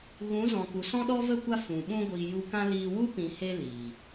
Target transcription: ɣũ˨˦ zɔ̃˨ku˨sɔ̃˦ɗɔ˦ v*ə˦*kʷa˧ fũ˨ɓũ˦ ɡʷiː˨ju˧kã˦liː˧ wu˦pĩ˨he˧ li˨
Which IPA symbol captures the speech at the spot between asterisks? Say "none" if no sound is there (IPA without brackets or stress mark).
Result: ə˦˨